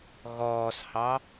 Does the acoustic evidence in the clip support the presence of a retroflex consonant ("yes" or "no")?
no